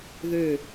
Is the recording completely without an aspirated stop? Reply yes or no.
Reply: yes